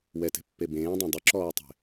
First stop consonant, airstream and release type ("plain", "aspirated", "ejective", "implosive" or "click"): plain